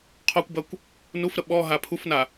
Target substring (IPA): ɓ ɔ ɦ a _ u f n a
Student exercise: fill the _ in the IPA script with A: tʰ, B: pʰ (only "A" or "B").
B